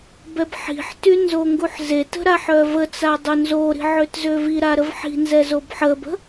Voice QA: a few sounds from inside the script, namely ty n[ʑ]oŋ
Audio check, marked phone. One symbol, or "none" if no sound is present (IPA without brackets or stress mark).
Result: z